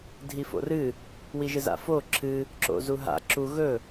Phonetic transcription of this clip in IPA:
dʱ i f o̰ r ɨ | w i ʒ ɨ z a̰ f o ǁʰ ɨ | ǁ o̰ z u ɦ a̰ ǁ u ɣ ɵ

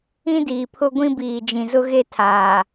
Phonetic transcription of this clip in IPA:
ĩ˦ d iː˨ pʰ ʊ˦ ɡʷ ĩ˦ b iː˨ d͡ʒ ĩ˨ z ʊ˦ ɣ e˦ tʰ aː˨

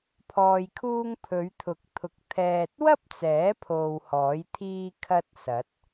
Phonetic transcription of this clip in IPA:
pʰ ɔː˧ j kʰ uː˥ ŋ pʰ ɵ˨˧ ɥ t̪ʰ ʊ˨˥ k̚ t̪ʰ ʊ˨˥ k̚ t̪ʰ ɛː˨ t̚ w ɐ˥ p̚ t͡s ɛː˨˥ pʰ o˧ w h ɔː˨˥ j t̪ʰ iː˥ kʰ ɐ˥ t̚ s ɐ˨˥ t̚

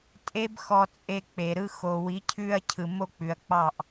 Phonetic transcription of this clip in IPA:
tʼ e˦ b x ɔ˧ t͡sʼ e˧ k͡p e˨ ɾ ɯ˧ x o˨ w i˨˦ cʰ ʉ˧ ɐ̯ cʰ ɯ˨ m o˧ k͡p ʉ˨ ɐ̯ k͡p ɑ˦˨ ʔ

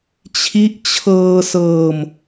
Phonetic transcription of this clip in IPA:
t͡ɕʰ i˦˥ ʔ t͡ɕʰ ɤː˧ s ɤː˧ m

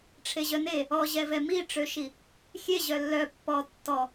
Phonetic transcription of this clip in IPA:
ʈ͡ʂʰ e ʑ œ n e | ɔ ʑ ɛ v ɛ m i ʈ͡ʂ ø ʃ i | xʲ e ʑ œ lː œ pː ɔ tː ɔ

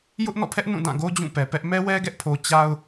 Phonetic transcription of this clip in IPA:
j ʊ˦ ʔ n ɔ̰˦˨ pʰ ɛ˦ ʔ n ũ˦˨ d ã˦˨ ɡ o˦ d͡ʑ ũ˦˨ p ɛ˨ p ɛ˦ ʔ m ɛ˦ w ɛ˦ ɡ ɛ˦ ʔ pʰ o˨ t͡ɕ a˦ ʊ̯

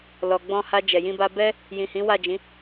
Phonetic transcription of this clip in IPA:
l ɔ˨ ɡ͡b ɔ̃˧ h a˧ d͡ʒ ɛ˨ j ĩ˧ b a˧ b ɛ˦ | j ĩ˨ h ĩ˨˦ w a˦˨ d͡ʒ ĩ˨˦

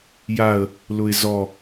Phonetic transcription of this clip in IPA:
j a ə̯ | l ʊ ɪ̯ z ɔ

